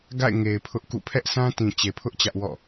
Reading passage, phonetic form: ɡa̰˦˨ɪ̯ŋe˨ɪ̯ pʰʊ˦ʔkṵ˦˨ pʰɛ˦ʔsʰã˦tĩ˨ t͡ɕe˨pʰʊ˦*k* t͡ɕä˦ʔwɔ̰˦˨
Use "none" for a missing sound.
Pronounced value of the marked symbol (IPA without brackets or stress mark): ʔ